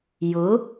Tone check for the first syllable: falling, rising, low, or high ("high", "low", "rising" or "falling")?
rising